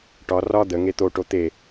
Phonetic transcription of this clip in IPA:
ʈɒ rɒ d̪əŋe t̪oʈo t̪e

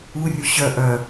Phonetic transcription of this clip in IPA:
urʲu ɕœ ʔœ

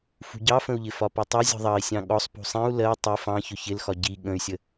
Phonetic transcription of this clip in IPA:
fṳɟɑfə̃u̯ʎɪ fɒputˤɑ zʲɔ̤ðˤɑi̯sʲɑ̃ ɠɔsˤ pṳsˤĩu̯ lɜ tˤi fɑ̃çʊ çɪlxɒ ɟi ɠə̃y̯sʲə

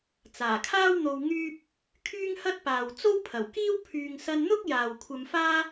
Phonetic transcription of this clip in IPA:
t͡saː˨˩kʰaː˥wn̪o˧w ŋyː˥p̚ | kʰyː˥ŋhɐ˥t̚paː˨w t͡so˥wpʰɐ˨˩wkiː˥w pʰyː˨ŋsɐ˧nn̪ʊ˥k̚ jaː˨wkʷʰɐ˧mfaː˥

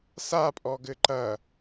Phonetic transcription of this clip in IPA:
sapʼɔɡɘ ǃɐ

